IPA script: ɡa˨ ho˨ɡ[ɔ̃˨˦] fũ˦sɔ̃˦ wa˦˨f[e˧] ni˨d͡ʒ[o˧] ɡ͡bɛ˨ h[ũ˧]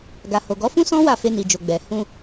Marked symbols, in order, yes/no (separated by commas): no, yes, no, yes